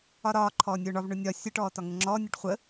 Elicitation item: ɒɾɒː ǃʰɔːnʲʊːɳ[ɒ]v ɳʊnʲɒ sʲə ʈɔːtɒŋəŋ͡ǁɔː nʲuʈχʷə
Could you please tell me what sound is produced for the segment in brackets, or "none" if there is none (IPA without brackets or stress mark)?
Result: ɒ